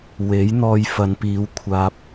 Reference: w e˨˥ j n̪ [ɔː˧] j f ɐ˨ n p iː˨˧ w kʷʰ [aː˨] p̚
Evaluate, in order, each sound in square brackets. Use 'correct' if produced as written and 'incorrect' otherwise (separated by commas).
correct, correct